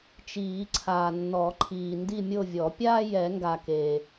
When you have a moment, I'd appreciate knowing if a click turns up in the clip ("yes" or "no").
yes